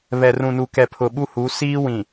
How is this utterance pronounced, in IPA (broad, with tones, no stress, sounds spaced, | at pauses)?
β ɛ˨ r ũ˨ n u˨ k ɛ˨ pʰ ʊ˨ ɓ u˦ h u˨˦ s iː˦ w ĩ˨